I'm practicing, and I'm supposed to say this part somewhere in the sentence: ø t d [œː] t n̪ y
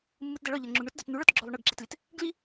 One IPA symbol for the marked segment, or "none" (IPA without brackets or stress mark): œ